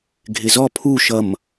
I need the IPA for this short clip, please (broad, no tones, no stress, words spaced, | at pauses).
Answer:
ɡʱɪzɔ pʰu ʃʌm